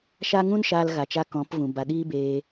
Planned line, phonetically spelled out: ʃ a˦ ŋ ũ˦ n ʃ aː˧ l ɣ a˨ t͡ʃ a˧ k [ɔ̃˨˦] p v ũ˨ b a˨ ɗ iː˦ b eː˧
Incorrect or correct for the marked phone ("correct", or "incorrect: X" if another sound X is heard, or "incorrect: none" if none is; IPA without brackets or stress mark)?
correct